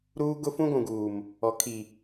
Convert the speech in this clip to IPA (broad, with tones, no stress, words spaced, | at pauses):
ɾuː˦ ɡʊ˦fũ˦ɡʷũ˨ɡuː˨m | ɔ˨ kʰi˨